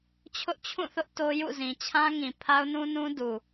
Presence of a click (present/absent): absent